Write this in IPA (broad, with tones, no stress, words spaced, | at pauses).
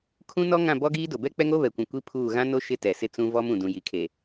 kʰũ˦ nɔ˦ŋã˦˨ bɔ˦ɡiː˦ do˨bɛ˦ k͡pɛ˦ŋo˦βɛ˨kʷũ˨ kʷi˦pʰuː˦˨ ɣã˦no˦ ʃɪ˦tɛ˨sɪ˦ t͡sũ˦vɔ˦m ũ˨ dũ˨ji˨kʰe˨